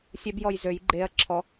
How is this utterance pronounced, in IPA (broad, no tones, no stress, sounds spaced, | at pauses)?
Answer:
sʲ ɛ b j ɔ j z ø j ɡ͡ǃ e ɐ̯ ǁʰ ɔ